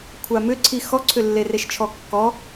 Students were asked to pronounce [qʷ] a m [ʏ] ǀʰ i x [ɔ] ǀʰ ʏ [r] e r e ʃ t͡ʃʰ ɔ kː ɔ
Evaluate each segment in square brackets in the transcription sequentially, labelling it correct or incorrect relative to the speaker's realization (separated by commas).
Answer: incorrect, correct, correct, incorrect